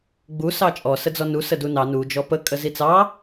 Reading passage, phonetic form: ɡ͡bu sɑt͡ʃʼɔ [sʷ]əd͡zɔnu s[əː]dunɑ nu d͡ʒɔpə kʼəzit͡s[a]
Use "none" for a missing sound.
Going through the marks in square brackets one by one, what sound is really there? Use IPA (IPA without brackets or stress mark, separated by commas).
s, ə, ɑ